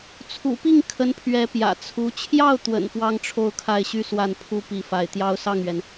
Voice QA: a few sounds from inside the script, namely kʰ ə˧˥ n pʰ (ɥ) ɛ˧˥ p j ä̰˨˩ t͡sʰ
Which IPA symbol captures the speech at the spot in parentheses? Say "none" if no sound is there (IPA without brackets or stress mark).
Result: ɥ